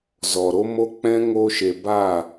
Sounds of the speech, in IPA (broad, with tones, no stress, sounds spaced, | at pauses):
z ɔ˨ ɾ o˦ m o˦ k͡p ɛ̃˦ ŋ o˧ ʃ e˨ b a˦˨